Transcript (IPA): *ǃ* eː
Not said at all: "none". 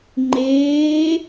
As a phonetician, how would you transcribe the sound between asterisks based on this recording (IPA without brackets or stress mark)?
ŋ͡ǃ